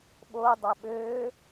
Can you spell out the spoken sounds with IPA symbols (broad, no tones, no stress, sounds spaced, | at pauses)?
ɓ oː dˤ æ ɓ øː